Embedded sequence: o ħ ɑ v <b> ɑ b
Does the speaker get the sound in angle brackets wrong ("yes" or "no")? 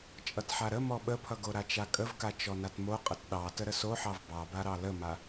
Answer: no